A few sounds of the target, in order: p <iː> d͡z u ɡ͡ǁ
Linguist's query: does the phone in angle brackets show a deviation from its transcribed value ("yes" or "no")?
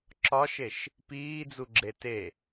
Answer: no